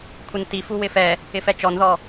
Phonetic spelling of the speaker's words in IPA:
kʷʰ ɪ n t i f u w ɪ f ɛ | ɪ f ɛ t͡ʃ ɔ n ð ɔ

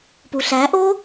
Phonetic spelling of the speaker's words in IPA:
p u ɬ æ ʔ o

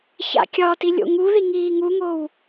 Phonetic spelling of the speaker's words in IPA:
ç a̰ kʲ ɒ t i lʲ o̰ ŋ u ð i ŋ iː ŋ u ŋ o w

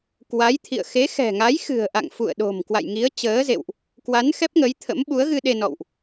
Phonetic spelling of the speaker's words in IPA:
k w a˨˦ j t̪ʰ ḭ˧˨ ə̯ x e˨˦ x ɛ̤˨˩ ŋ a˨˦ j x ɨ̤˨˩ ə̯ ʔ a̰˧˨ ŋ f ṵ˧˨ ə̯ ɗ o̤˨˩ m k w a̰˧˨ j ŋ i˨˦ ə̯ t͡ɕ əː˨˦ z ḛ˧˨ w ʔ | k w a˨˦ n x ɛ˦˥ p̚ ŋ ə˨˦ j t̪ʰ ə̰˧˥ m ɓ u˨˦ ə̯ ɣ ɨ˧ ɗ e˧ n ɔ̰˧˨ w ʔ

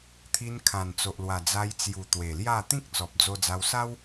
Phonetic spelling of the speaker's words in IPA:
t̪ʰ i˧ n kʰ ã˨˩ n t͡s o˨ ʔ l w a˨˩ d͡z a˧ j t͡s j u˨˩ t̪ w e˨˩ l j a˥˧ t̪ ĩ˦ k̚ t͡s ɔ˨ p̚ d͡z o˧ d͡z a˧ w s a˦ w

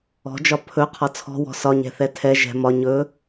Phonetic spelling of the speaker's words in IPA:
ɔ̤ d͡ʒ ɒ pʰ ɵ qʰ ɒ t͡sʰ ɔ̤ w ɔ̤ s ɒ ɲ ɛ̤ θ ɛ tʰ ɛ ʒ ɛ̤ m ɒ ɲ ɵ

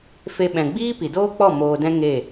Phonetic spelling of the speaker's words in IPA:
f e˧ ɓ ɛ̃˨ ɡ͡b iː˦ p i˨ d oː˦ k͡p ɔ˦˨ m oː˨ d ɛ̃˧ ŋ e˦˨

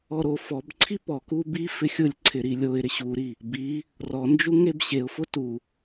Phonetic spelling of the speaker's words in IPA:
ɔ ɾ o f ɔ b ǀʰ i p ɔ k u b i f ɪ xʲ ʊ lʲ ǀʰ ɪ ɾ i lʲ o ɪ̯ ɾ ɪ ɕ u ɾ i | b i | r ɔ n d͡ʒ u ŋ e b ɕ e ʊ̯ f ʊ t u

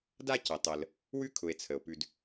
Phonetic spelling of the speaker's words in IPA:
d a˦ c ə˩ tˤ ə˩ l | w ʉ˥ kʰ ʊ˨ e̯ t͡sʰ ə˩ o̯ p ʉ˨ d

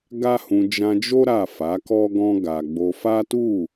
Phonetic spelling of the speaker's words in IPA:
ɡ a˦ h ũ˧ d͡ʒ ã˧ d͡ʒ o˦ ɾ a˦˨ f a˨˦ k ɔ˦ ɡ ɔ̃˦ ɡ a˧ ɡ͡b o˧ f a˦ t u˦˨

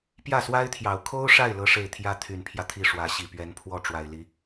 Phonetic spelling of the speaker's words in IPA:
p j ä˥˩ s w a˥ ɪ̯ t̪ʰ j ɑ˨˩ ʊ̯ kʰ o˥ ʊ̯ ʂ a˥˩ ɪ̯ l ɤ˥ ʂ e˥˩ ɪ̯ t̪ʰ j ä˥ t̪ʰ y˨˩ n pʰ j ä˦ t̪ʰ i˥˩ ʂ w ä˧˥ ɕ i˨˩ p ɥ ɛ˧˥ n pʰ w ɔ˥˩ ʈ͡ʂ w a˨˩ ɪ̯ l i˧˥

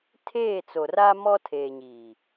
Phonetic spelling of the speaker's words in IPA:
tʰ eː˦˨ t͡s o˨ r a˦ m ɔ˦ tʰ eː˨ ɲ iː˨

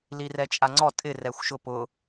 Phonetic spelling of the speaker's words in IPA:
l i r ɛ t͡ʃʼ a ŋ͡ǀ ɔ tʼ ɪ r ɛ xʷ ʃ ʊ p ʊ

